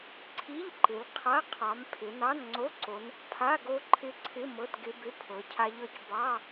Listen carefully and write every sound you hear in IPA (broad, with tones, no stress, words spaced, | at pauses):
ǀʰi˧˥˧ʎǃɪ˨˦l qʰa˧˥˧qʰɑ˨˦mpʰɪ˨˦ nɑ˧˥˧nŋ͡ǀo˧˥˧ǀo˨˦n | pʰa˧˥˧ɡo˦˥ǃʰɪ˦˥ǀʰɪ˧˥˧ mɤ˧˥˧tɡɪ˦˥bɪ˧˥˧ pʰɤ˨˦cʰa˦˥ʎɤ˦˥c bɑ˧˥˧